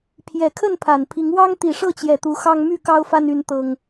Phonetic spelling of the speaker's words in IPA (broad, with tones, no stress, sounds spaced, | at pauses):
pʰ j ɛ˨˩ kʰ ə˥˨ n pʰ a˨˩ n pʰ i˨˦ ŋ w ɑ˦ ŋ t̪ i˨˩ ʂ ɤ˥˨ t͡ɕ j ɛ˨˩ t̪ u˨˦ x ɑ˦ ŋ m y˥˨ k ɑ˦ ʊ̯ f a˦ n y˦ n t̪ ɤ˦ ŋ